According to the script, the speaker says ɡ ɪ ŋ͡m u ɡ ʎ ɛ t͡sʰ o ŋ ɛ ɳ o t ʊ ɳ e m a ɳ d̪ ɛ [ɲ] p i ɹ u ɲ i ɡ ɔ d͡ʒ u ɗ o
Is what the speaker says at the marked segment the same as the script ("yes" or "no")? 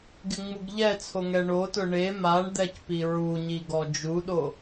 no